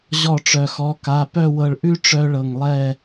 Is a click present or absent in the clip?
absent